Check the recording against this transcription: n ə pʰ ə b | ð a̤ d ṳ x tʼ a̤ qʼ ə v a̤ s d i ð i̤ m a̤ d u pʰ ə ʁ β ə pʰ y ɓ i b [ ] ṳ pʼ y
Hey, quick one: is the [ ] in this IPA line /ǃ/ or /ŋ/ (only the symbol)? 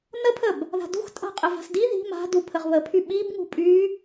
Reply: ŋ